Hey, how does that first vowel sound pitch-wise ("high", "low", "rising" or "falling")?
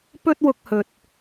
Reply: high